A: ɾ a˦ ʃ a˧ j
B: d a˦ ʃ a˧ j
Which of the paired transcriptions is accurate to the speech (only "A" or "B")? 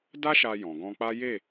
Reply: B